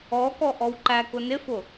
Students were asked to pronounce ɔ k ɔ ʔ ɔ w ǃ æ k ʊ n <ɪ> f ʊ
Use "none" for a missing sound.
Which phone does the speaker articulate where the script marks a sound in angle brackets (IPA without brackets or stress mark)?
ɪ